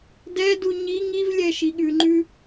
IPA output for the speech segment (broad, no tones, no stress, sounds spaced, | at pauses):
d ɛ d u ɲ i ŋ i v lʲ ɛ ʃ i ɠ ʉ ŋ͡ǃ ʉ